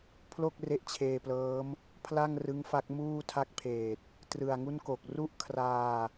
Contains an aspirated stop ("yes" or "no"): yes